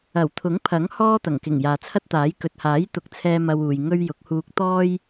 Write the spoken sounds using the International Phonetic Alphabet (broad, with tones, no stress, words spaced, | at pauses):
ɐ˨˩w t̪ʰʊ˨˥ŋpʰɐ˨˥ŋ hɔː˥t̪ɐ˨˩ŋkɪ˨˩ŋ jaː˨t͡sʰɐ˥t̚t̪aː˨˥j kɵ˨t̚haː˨˥j t̪ʊ˨˥k̚t͡sʰɛː˧ mɐ˧w uː˨j ŋɵ˧ɥ jʊ˨˥k̚huː˧k̚ t̪ɔː˥j